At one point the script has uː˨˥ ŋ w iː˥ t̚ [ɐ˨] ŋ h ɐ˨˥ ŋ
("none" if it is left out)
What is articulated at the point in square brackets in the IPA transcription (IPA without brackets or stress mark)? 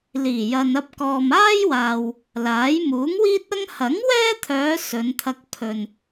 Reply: ɐ˥